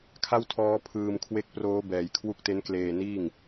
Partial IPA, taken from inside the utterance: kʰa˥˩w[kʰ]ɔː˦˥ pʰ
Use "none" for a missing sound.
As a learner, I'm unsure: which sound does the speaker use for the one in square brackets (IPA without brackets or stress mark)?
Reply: tʰ